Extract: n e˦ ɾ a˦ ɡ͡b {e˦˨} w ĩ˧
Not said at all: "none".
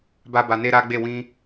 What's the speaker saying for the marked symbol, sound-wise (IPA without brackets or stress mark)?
e˦˨